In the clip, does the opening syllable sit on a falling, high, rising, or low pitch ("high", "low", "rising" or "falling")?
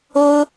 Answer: high